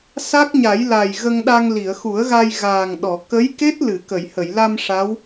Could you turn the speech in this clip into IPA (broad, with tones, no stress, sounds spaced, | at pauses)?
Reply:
s a˦˥ k̚ ɲ a˨˩˦ j l a˨˩ j ɣ ə˧ ŋ ɗ a˧ ŋ l i˨˩˨ ə̯ x u˨˩˦ ə̯ ɣ a˧ j ɣ aː˨˩ ŋ ɗ ɔ˨˩˨ k ə˧˥ j k e˦˥ t̚ l ɨ˨˩˨ k ə˨˩˨ j h ə˨˩˨ j l a˧ m ʂ a˧˥ w